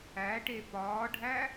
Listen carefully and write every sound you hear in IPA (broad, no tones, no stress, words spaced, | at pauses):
æʈe pɒːɖʱæ